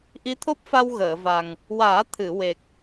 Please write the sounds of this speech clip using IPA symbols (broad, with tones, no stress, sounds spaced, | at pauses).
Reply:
ʔ i˧˥ t̪ʰ o˦˥ p̚ f a˧ w ɣ əː˨˩˨ v a˨˩ ŋ | w aː˨˩˦ t̪ʰ ɨ˨˩˨ w e˨˩ k̚